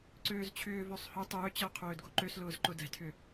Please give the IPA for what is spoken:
ǀ øː z t͡ɕʰ ʏː v ø sˤ h ʏ tˤ ʏː t͡ɕ əː qʰ øː d ɡ o ǃ ø s l ʊː z ǃ ʊ d ɛ̤ tʰ ʏ

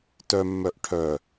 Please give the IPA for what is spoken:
t œ mː œ ʔ ʈʰ œ

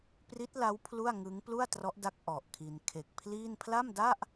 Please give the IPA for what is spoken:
p r i˦˥ t̚ l a˦˥ w pʰ l u˥˩ a̯ ŋ ɯ˦˥ ŋ p l u˥˩ a̯ t r ɔ˦˥ ʔ d a˦˥ k̚ ʔ ɔ˨˩ ʔ kʰ i˧ n kʰ e˨˩ k̚ pʰ l iː˥˩ n pʰ l a˥˩ m d a˥˩ ʔ

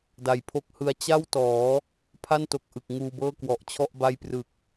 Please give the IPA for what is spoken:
d a˨˩ j pʰ o˦˥ k̚ h ɯ˧ a̯ t͡ɕ a˥˩ w t ɔː˩˦ | pʰ a˥˩ n t o˨˩ k̚ ʔ ɯ˨˩ k̚ ŋ uː˧ b ɤː˥˩ k w ɔ˨˩ ʔ t͡ɕʰ ɔ˥˩ ʔ b a˦˥ j p r ɯ˨˩ k̚

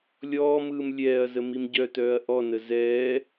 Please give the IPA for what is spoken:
lʲ ɔː m ɯː m lʲ ɛː ɐ̯ z ə m i m ɟ œ t œː ɐ̯ ʔ ɔ n ə z ɛː

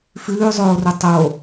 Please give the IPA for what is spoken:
f ʉː zˤ oː r o tˤ o

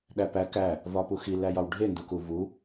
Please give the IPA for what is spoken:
ɗ æ p æ k æ | v ɒ p u x i l æ j ɒ w ɖʱ e n d u k u v u

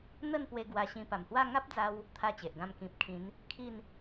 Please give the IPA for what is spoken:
n̪ ə˥˧ n p w e˧ ɡ w a˧ ɕ ĩ˧ p a˨˩ m h w a˥˧ ŋ a˦ p̚ d͡z a˧ w | t̪ʰ a˥˧ t͡ɕ e˨ ʔ ɡ ã˥˧ m k ĩ˨ p̚ kʰ ĩ˨˦ n | kʰ i˥˧ n

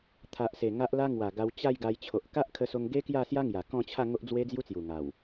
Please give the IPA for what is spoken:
t̪ʰ a˨ ʔ s e˨˩ ŋ a˦ ʔ l a˦ ŋ w a˨˩ ɡ a˧ w t͡ɕ a˥˧ j ɡ a˧ j t͡ɕʰ o˨ ʔ k a˦ ʔ kʰ ə˧ s o˧ ŋ ɡ e˦ k j a˥˧ s j a˦ ŋ j a˨˩ k ɔ̃˥˧ t͡ɕʰ a˥˧ ŋ o˦ ʔ d͡z w e˦ d͡z j u˦ t͡s j u˨˩ ŋ a˨˩ w

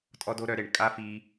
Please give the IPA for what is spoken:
tʼ ɔ˦ d o˦ ɾ œ˧ ɾ e˨ ɳ kʼ a˦ f i˧

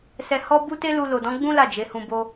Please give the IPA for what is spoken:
s ɛ˧ h ɔ˦ b u˦ t e˦ l u˧ l o˨ d ɔ̃˨˦ ɡ͡b ũ˦ l a˦˨ d͡ʒ e˨˦ h ũ˧ b o˧

